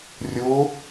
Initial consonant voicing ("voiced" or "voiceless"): voiced